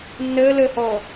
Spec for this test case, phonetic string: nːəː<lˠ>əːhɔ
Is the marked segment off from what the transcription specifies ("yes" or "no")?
yes